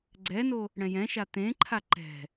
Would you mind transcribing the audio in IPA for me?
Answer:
ɡ͡ǀɛno | ɽɛ̃jɛ̃ʃa t̪ẽǃʰa ǃɛ̤

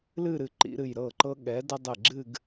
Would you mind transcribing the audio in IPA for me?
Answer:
lɨ˥˧ɾɨ˧˩ǃḭ˧ɾɨ˧˩j ɾɤ˧˩ǃɤ˧ɠɛ˩˧ də˧ dˤe˧˩ɡ͡ǁɨ˥˧ɡ

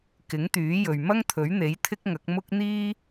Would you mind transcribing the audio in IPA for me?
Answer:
kɪ˨˥ŋt̪yː˨˥jɵ˨ɥ mɐ˥ŋt̪ʰɵ˨˥ɥn̪e˨˥j t̪ʰɪ˥k̚ŋɐ˨˥k̚ mʊ˥k̚ n̪iː˥

